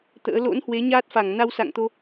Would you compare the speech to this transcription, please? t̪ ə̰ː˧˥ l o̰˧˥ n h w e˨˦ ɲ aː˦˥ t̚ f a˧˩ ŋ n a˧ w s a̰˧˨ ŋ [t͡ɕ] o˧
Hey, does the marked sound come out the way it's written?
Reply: no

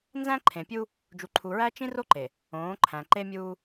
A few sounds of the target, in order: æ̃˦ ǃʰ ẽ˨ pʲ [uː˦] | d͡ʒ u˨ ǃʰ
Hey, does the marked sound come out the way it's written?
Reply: no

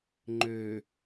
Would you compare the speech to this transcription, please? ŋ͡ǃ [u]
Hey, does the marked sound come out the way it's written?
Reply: no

